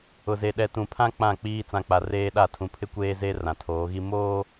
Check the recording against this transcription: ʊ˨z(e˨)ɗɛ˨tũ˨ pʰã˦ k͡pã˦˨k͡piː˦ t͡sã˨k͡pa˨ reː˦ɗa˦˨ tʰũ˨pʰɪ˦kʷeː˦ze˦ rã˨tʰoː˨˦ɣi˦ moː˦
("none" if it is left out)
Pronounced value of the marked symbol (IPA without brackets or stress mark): e˨